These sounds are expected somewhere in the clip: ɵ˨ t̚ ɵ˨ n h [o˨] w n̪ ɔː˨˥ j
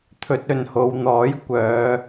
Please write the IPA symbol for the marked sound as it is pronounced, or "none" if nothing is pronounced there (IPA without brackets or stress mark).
o˨